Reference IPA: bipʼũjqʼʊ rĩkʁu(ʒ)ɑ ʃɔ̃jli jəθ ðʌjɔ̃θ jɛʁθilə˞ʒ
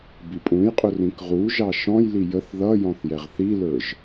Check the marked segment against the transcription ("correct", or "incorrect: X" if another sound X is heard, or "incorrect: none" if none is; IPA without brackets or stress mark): correct